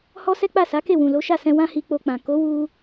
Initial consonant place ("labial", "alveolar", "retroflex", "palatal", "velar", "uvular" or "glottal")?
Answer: glottal